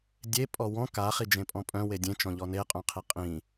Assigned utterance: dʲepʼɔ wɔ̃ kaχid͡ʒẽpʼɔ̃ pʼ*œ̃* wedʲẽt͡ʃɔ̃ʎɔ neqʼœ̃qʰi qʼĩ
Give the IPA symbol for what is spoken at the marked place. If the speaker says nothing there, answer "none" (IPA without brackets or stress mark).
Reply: œ̃